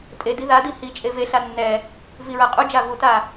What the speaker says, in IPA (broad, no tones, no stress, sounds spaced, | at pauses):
tʼ e d i ð a d i h i t͡ʃʼ e v e ɬ a nː ɛ | v i ɹ a qʼ u d͡ʒ a v u t a